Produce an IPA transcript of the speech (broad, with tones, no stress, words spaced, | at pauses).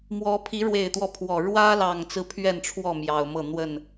mwɔ˨˦ pʰi˨˦ɻwe˨˩ɪ̯t̪wɔ˦ pʰwɔ˨˩ ɻwä˦lɑ˨˩ŋt͡sɹ̩˦ pʰɥɛ˥˨nʈ͡ʂʰwɔ˥˨ mjɑ˨˩ʊ̯mɤ˥˨ n̪wə˥˨n